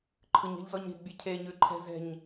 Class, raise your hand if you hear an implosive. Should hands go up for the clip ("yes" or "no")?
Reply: no